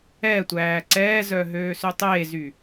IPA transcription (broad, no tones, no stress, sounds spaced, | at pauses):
ɛ tʷ æː ǀ ɛː z œ ɦ øː s ø tˤ eː z y